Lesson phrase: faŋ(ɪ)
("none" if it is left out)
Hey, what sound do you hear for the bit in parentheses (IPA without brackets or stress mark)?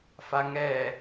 ɛ